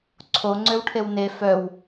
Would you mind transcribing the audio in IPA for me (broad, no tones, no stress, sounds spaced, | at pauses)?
ǀʰ o ŋ͡ǀ ø w ʈʰ e w n e f œ w